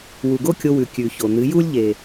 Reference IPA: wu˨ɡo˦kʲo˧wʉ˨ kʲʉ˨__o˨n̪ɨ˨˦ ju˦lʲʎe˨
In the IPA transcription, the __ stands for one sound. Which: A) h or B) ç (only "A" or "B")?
B